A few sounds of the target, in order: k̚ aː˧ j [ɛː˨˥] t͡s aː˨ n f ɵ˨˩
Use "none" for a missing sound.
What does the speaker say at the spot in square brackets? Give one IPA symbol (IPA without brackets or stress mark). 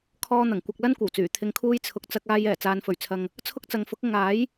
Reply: ɛː˨˩